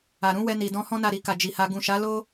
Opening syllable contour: low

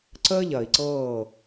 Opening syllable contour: high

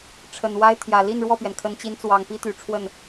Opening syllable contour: low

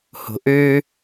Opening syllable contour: low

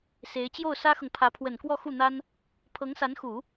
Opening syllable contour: rising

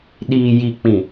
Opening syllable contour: low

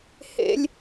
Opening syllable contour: high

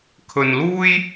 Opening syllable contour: low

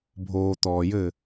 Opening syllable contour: low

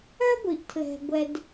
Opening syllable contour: high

